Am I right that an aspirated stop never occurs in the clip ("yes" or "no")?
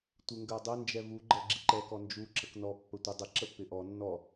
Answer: yes